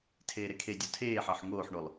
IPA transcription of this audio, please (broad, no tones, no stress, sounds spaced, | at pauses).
tʰ eː ɾ e kʰ e dʲ o tʰ eː ħ ɑ ħ ŋ oː ħ ɳ o lˠ